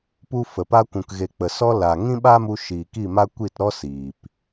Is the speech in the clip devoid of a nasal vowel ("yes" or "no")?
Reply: no